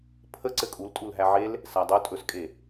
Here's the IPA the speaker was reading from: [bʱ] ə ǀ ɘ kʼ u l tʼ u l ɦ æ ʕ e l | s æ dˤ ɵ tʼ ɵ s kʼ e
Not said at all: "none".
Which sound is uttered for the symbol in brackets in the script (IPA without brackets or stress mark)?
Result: pʰ